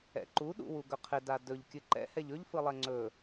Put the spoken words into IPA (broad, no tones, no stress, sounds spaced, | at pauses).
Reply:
ɛ̰ ǃ u ɗ ṵ w u ɡ ɵ qʰ ɪ d a d ɵ ʎ kʲ ɨ ǃ ɛ̰ h ɛ ʎ ɵ ʎ f ɯ lˠ ɛ ŋ͡ǀ ɵ